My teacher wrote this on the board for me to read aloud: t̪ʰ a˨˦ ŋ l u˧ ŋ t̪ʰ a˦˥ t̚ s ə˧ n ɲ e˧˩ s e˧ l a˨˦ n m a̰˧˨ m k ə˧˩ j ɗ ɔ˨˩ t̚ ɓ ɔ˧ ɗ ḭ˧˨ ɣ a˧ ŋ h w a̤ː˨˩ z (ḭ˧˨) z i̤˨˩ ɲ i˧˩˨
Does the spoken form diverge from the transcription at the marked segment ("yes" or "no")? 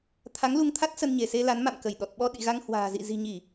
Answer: no